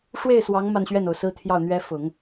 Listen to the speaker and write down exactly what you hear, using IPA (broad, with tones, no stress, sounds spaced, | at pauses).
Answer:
ʂ w e˥˩ ɪ̯ s w ɑ˧˥ ŋ m a˥˧ n ɕ ɥ ɛ˥˩ n o˩ ʊ̯ s ɹ̩˥ t̪ʰ j ɑ˥˩ ʊ̯ n̪ ɥ ɛ˥ f ʊ˨˩˦ ŋ